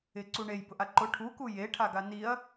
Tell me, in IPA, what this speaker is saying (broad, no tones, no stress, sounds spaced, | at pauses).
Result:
ɪ ǀ u ɳ e j b ʊ ʔ a ǃ ʊ ʈʰ u k u j e ʈʰ a ɡ a n i ɐ̯